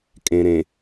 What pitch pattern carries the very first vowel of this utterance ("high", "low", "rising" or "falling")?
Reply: low